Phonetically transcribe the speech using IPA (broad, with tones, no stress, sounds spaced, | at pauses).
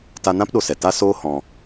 t a˧ n ã˦ p ɗ o˧ s ɛ˨ t a˦ s oː˦ h ɔ̃˧